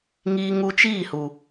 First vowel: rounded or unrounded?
unrounded